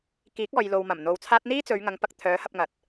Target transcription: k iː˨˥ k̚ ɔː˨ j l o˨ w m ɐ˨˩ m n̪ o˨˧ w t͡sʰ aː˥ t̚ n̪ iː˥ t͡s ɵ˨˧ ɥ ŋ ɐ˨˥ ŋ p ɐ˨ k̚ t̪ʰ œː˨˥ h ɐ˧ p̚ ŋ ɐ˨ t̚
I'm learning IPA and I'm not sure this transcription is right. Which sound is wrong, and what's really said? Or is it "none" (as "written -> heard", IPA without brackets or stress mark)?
none